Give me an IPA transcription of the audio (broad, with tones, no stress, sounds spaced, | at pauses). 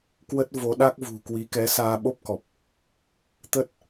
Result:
k w ə˦˥ t̚ v o˨˦ ɗ a˦˥ k̚ v ṳ˨˩ k w i˨˦ k ɛ˨˦ s aː˧ ɓ o˦˥ p̚ k ɔ˨˩ p̚ | t̪ ə˦˥ t̚